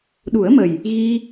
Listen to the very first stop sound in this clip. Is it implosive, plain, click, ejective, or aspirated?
implosive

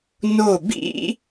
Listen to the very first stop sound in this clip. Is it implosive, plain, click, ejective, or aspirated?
plain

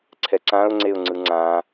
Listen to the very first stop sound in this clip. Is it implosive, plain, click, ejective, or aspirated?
click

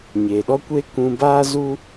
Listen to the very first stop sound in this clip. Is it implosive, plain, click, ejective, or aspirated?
implosive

